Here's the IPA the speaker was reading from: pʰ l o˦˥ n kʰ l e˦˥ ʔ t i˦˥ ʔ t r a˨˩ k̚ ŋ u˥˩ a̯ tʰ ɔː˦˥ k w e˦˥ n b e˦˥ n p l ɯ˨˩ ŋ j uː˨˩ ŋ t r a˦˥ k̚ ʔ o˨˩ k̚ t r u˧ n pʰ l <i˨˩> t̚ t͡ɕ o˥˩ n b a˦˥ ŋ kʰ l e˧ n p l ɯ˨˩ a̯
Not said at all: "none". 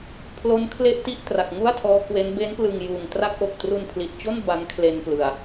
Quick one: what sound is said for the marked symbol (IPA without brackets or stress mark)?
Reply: i˨˩